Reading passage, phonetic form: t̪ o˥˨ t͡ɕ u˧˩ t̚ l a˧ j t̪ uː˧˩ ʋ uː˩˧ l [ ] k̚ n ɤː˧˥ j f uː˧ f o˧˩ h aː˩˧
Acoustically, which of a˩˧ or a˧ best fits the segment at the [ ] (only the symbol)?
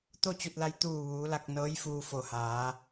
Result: a˧